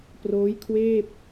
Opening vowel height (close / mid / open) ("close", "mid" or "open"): mid